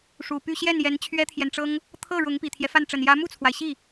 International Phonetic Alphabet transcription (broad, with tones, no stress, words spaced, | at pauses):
ʂu˨˩py˥˧ ɕjɛ˥˩n jɛ˧˥nt͡ɕʰɥɛ˥t̪ʰjɛ˨nʈ͡ʂɤ˥ŋ | t̪ʰɤ˥˩ ɻʊ˧˥ŋ pi˨˩t̪ʰjɛ˦fa˥˩nʈ͡ʂə˨˩n jä˧˥mu˥˩t͡sʰwa˩ɪ̯ ɕi˥˩